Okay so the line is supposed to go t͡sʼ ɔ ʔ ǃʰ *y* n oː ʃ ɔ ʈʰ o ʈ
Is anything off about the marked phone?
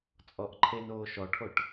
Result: yes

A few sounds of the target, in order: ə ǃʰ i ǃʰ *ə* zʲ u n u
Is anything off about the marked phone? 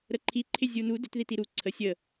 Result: yes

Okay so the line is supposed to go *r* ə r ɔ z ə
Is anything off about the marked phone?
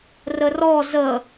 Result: no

